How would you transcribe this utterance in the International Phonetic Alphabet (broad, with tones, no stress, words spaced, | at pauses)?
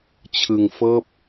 t͡ɕʰɯ˧ŋfɤː˦˥p̚